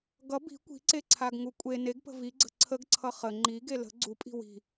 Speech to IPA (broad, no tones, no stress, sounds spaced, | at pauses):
ɡ ʌ b i̤ kʷ i̤ ǀ e ǀʰ a ɡ ŋ u kʷʼ e n e ɡ p ə̤ v i ɡ͡ǀ ə̤ ǀʰ ə ɡ ǀʰ ʌ χ ə ŋ͡ǃ i ɡ e l ə̤ ɡ͡ǀ u pʼ i̤ w i̤